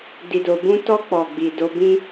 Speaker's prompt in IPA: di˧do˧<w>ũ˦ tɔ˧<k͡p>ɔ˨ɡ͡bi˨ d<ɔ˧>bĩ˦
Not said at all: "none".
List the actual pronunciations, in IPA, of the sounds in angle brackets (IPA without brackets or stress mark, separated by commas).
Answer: b, k͡p, o˧